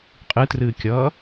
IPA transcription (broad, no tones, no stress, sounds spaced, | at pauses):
qʼ ɨ t r ɨː kʲ ʌː